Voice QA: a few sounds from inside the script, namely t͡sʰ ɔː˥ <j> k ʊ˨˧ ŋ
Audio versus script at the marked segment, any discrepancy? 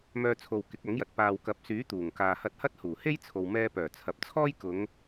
no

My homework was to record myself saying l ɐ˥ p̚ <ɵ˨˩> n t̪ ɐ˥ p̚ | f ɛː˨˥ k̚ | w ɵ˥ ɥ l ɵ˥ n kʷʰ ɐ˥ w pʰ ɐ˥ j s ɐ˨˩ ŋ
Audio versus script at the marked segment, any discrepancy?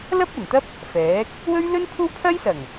no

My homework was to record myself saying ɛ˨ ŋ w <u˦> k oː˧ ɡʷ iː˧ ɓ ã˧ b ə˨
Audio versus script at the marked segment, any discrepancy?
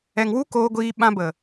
no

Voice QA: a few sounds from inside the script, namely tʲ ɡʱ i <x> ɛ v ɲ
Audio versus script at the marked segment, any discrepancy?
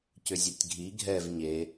yes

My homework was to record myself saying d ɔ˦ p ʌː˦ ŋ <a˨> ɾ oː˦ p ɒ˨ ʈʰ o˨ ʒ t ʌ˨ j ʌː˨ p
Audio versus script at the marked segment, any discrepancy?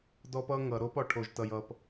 yes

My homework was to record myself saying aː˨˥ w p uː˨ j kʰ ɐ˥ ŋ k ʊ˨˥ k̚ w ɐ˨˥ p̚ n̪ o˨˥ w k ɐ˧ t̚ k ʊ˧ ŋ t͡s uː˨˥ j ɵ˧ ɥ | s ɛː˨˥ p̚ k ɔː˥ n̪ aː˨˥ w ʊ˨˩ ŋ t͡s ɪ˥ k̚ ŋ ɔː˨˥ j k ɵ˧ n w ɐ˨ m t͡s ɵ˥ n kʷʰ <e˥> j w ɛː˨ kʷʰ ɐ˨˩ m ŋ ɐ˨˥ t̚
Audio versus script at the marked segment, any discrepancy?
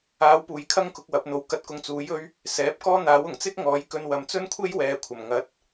no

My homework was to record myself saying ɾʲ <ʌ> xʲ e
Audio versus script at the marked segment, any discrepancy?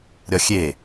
yes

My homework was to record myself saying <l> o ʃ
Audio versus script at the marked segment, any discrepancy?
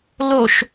no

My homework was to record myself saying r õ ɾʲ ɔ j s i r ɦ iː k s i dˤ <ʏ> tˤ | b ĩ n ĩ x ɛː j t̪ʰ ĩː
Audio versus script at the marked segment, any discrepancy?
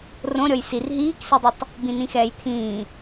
no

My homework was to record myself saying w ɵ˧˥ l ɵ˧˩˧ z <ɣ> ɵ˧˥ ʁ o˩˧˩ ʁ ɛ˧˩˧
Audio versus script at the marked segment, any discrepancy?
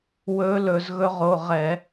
no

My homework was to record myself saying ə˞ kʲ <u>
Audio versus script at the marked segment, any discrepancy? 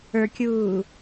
yes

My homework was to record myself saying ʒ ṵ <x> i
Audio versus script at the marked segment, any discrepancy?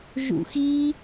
no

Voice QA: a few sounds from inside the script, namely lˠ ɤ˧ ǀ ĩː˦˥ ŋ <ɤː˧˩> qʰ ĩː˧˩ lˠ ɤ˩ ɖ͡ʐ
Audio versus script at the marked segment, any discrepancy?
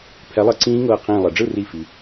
no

